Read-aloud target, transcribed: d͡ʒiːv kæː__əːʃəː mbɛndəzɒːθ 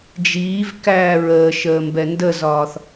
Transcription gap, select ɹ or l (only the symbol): ɹ